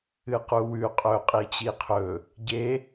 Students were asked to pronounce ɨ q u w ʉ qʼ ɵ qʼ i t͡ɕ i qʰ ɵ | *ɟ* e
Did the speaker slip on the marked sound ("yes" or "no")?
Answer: no